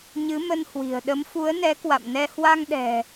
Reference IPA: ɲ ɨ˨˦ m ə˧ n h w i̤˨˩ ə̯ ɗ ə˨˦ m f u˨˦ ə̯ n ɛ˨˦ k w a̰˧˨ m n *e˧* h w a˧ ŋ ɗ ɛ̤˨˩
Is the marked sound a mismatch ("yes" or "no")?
yes